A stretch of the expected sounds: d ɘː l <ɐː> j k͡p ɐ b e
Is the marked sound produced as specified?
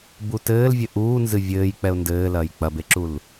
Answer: yes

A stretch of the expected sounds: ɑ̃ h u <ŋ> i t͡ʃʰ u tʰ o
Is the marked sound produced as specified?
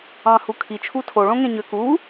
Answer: no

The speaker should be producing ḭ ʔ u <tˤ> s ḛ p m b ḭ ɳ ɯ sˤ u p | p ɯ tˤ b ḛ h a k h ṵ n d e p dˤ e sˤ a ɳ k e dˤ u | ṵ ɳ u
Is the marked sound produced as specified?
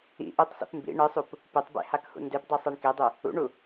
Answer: yes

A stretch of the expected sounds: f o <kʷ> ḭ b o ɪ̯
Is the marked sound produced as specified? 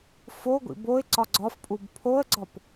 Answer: no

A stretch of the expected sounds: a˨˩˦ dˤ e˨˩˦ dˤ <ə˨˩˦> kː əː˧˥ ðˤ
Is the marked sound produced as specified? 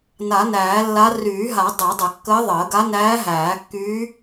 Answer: yes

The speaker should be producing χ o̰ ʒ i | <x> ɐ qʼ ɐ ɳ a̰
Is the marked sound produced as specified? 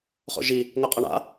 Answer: no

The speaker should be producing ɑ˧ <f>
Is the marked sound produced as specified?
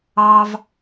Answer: no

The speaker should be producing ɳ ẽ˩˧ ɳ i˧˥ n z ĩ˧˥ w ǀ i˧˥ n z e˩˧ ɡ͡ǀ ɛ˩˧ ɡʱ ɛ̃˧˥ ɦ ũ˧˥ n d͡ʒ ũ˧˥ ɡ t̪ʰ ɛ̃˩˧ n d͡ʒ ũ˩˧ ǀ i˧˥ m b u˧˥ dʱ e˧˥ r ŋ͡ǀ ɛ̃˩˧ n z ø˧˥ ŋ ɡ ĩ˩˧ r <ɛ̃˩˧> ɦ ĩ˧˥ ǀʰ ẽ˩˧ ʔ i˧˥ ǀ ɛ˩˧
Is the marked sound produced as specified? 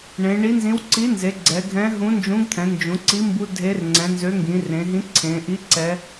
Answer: no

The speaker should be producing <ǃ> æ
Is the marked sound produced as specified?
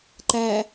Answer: yes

